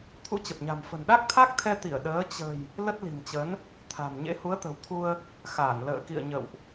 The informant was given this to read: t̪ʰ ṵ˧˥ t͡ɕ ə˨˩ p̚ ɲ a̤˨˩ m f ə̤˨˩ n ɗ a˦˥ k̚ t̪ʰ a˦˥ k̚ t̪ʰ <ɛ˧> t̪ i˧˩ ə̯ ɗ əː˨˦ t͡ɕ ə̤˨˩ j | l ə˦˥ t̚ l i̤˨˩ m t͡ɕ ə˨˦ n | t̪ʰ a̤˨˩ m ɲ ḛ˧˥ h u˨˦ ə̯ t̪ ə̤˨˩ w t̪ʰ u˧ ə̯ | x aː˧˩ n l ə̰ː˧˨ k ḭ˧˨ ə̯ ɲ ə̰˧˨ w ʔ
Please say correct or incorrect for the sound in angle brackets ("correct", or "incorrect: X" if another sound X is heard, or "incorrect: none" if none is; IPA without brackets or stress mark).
correct